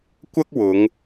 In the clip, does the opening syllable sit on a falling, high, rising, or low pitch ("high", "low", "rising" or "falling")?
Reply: high